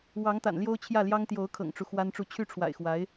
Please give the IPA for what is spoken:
w ɑ˧˥ ŋ t̪ a̰˨˩ n l j o˥ ʊ̯ t͡ɕʰ j ä˥˩ l j ɑ˥ ŋ t̪ j o˧˥ ʊ̯ kʰ ɤ̰˨˩ ŋ ʈ͡ʂ u˦ x w a˥ n ʈ͡ʂ u˥˧ t͡ɕʰ y˥˩ ʈ͡ʂʰ w a̰˨˩ ɪ̯ x w a˧˥ ɪ̯

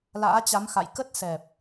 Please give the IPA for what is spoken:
l a̰ː˧˥ t͡ɕ a˨˦ m x a̰˧˨ j k ə˦˥ t̚ s ɛ˨˩ p̚

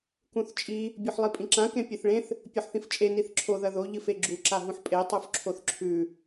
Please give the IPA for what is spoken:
k ũ θ t͡ʃʼ i | bʲ u ħ lˠ i pʼ ĩ ǁ ã k ẽ pʲ ɨ θ ɭ ẽ θ | pʲ o ħ θ ĩ f t͡ʃʼ e n i θ ǁʰ o ð ɐ ð o ʎ ɨ f e ɡ͡ǁ u ǁ a ɦ ũ ħ pʼ e tˤ u f ǁʰ o θ ǁʰ ʉ

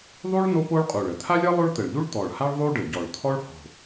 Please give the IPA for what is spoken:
ðˤ u˥ ɭ n o˥ p o˥ ɭ qʼ u˨˩ ɭ ə˨˩ t̪ʰ a˥ lʲ ʌ˥ lˠ o˥ ɭ t̪ ə˨˩ ɭ ʎ u˥ ɭ t̪ ɔ˨˩ ɭ h a˥ ɭ ðˤ u˥ ɖ ə˨˩ ɟ ɔ˨˩ ɭ t̪ʰ ɔ˥ ɭ h o̤˨˩

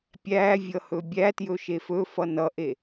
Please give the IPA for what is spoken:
pʲ æ vʲ ʌ h ɵ bʲ æ t j ɵ ʃ e f ɵ f ʌ n ʌ ʔ e

